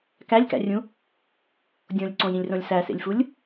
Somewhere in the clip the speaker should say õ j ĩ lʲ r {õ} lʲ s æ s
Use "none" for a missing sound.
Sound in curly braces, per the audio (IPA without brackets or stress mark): õ